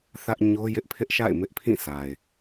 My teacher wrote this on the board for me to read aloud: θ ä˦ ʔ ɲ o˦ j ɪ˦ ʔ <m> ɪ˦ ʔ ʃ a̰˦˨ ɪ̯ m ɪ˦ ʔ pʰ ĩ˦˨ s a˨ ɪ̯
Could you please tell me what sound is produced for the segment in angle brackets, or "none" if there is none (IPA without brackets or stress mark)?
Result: pʰ